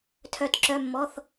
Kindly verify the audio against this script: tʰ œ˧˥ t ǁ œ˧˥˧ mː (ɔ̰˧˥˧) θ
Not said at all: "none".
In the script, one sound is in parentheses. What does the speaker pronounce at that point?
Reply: ɔ˧˥˧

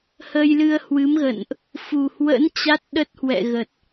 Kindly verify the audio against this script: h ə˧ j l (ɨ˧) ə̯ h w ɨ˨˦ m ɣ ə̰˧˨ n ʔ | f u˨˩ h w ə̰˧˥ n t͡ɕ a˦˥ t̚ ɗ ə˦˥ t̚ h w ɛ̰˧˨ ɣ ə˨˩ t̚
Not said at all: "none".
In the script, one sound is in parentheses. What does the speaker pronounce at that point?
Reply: ɨ˧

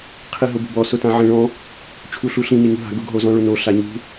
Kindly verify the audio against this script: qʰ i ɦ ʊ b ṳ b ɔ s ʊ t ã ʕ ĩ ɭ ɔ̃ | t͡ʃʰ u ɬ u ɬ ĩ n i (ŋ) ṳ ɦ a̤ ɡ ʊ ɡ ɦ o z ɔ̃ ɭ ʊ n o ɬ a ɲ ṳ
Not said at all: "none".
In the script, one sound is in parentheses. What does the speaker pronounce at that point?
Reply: ŋ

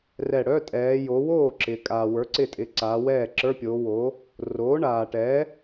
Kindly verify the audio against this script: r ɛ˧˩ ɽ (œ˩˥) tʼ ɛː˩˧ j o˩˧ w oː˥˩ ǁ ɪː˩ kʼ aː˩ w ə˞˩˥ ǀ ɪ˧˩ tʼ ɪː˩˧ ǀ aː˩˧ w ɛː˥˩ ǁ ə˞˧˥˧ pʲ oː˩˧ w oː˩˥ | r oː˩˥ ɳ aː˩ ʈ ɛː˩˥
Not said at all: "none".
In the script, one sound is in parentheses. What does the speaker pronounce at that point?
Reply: œ˧˥˧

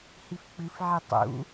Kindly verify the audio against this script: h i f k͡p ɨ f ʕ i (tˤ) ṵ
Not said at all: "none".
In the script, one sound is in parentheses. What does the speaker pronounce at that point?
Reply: tˤ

